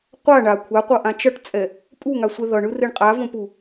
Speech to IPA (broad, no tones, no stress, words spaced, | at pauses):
qʷa ɳa kʷʰaqʷʌʔã t͡ʃʌʈt͡sʼɛ | pʼuŋasʷɛ ðʌɳɯreɳ qʼavõpu